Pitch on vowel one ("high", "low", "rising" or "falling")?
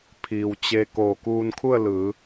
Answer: low